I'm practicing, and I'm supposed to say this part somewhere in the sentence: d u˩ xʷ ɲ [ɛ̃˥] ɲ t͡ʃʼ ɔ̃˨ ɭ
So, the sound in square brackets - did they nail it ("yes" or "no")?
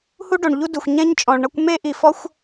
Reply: yes